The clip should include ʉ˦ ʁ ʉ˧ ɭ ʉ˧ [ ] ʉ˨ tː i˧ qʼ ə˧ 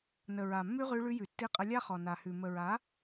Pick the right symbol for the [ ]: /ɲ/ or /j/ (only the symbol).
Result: j